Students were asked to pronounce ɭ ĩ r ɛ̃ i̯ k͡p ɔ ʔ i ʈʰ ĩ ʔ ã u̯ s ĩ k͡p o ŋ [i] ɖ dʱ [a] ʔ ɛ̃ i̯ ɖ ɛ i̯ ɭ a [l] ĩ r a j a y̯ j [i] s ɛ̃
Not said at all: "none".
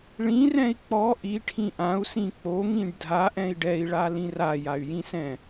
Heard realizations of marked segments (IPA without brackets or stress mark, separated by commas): ĩ, a, l, ĩ